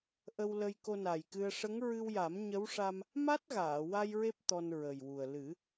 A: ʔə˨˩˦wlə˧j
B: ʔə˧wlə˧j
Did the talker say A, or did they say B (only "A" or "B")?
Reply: B